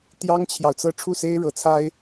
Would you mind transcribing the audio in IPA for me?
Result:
t̪ j ɑ˥ ŋ t͡ɕʰ j ɑ˨ ʊ̯ t͡s ɤ˥˧ ʈ͡ʂʰ u˥˩ s e˥ ɪ̯ ɻ ɤ˧˥ t͡sʰ a˥ ɪ̯

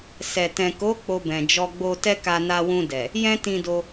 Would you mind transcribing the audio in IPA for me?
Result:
s ɛ˨ t ɛ̃˨ k o˨˦ k͡p o˧ b ɛ̃˨ d͡ʒ ɔ˧ ɡ͡b o˧ t ɛ˦ k a˧ n a˧ w ũ˧ d ɛ˨ | j ɛ̃˦ t ĩ˧ d o˧

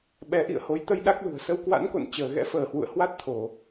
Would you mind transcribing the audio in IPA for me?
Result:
ɓ ɛ˨˦ ʔ ḭ˧˨ ə̯ h o˨˦ j t̪ ə˧ j ɗ a˦˥ k̚ l ṳ˨˩ ə̯ s ə˧ w k w a̰˧˥ n k o̰˧˨ n t͡ɕ əː˧˩ ɣ ɛ̰˧˥ f əː˧˩ h w ṵ˧˨ ə̯ h w a˦˥ t̚ t̪ʰ o˧˩˨

